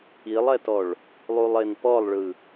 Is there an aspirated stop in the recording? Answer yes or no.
no